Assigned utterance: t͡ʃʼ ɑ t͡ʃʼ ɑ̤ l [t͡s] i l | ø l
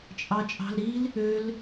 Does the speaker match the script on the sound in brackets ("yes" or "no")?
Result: no